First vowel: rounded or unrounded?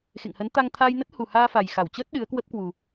unrounded